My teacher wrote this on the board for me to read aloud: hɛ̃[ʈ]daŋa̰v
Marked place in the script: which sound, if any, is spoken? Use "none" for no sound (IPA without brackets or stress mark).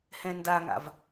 n